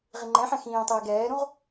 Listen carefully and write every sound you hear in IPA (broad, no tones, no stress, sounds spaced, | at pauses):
ʁ i ŋ͡ǃ ɛ̃ ħ ɛ̃ x ĩː tˤ iː ɡ ɛː ɾ ũ ʁ